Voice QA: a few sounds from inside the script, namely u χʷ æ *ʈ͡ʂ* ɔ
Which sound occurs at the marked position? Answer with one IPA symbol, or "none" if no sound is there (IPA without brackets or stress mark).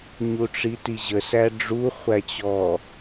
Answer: t͡ɕ